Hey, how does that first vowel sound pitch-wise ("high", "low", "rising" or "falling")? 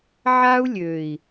high